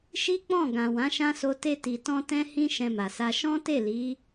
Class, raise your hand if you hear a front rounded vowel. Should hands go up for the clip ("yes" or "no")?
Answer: no